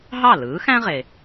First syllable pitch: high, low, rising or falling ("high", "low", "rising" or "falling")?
falling